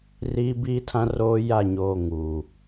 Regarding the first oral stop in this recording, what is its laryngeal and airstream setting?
plain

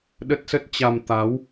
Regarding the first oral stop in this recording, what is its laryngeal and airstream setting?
implosive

